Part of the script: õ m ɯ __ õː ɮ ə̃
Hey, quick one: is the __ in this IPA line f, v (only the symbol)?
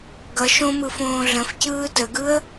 f